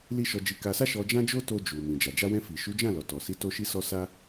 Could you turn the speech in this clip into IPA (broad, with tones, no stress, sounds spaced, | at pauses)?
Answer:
l i˦ ʃ ɔ˧ d͡ʒ i˧ k a˧ s a˦ ʃ ɔ˧ d͡ʒ ã˦ d͡ʒ o˦ t o˧ d͡ʒ u˨ m ĩ˨ d͡ʒ a˨ d͡ʒ a˧ w ɛ̃˧ f i˨ ʃ u˨˦ d͡ʒ ã˦˨ l ɔ˨ t ɔ˨ s i˨˦ t o˧ ʃ i˧ s ɔ˧ s a˦